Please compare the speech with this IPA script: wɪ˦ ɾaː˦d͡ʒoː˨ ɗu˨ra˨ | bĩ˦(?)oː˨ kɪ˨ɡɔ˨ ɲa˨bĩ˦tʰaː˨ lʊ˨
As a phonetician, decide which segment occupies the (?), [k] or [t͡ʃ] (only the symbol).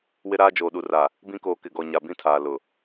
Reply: k